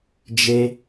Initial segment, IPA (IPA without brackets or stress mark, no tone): d͡ʒ